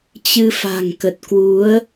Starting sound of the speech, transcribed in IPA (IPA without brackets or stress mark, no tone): t͡ɕ